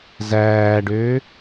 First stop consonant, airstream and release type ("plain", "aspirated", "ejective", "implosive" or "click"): plain